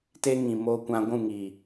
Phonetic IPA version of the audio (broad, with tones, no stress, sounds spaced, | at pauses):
t e˦ ŋ ĩ˨ m o˨ kʷ ã˨ ɡʷ ũ˦˨ ŋ i˨